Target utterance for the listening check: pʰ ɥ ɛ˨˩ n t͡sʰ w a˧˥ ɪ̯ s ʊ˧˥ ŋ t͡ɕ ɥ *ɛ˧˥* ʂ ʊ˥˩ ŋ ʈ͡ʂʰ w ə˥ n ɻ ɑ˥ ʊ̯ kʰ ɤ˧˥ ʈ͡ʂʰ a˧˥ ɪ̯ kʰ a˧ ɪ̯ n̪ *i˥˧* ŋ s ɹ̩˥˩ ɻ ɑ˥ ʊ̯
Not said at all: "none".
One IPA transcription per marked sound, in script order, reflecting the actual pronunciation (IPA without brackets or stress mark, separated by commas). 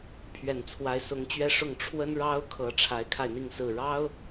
ɛ˥, i˥˧